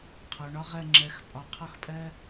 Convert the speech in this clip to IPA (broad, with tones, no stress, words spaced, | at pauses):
qʰɒ˩ɳɒ˦ ʁɜ˨ ŋ͡ǁɜ˩x pʼɒ˨qʰɔ˥xpʼɜ˥